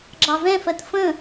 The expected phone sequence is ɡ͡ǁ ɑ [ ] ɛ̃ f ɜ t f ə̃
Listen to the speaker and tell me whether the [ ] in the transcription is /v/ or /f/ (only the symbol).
v